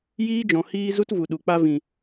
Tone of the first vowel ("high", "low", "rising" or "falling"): high